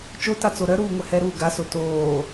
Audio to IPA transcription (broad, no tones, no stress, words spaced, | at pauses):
t͡ʃotat͡so ɾœɾuːŋʷɛ hɛɾuː ɡaso toː